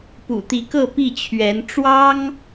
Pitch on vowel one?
low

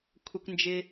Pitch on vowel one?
high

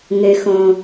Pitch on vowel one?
low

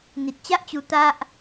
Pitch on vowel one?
low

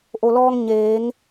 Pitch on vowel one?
low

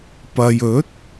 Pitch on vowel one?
low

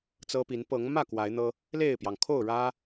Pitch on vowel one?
high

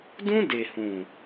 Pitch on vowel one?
high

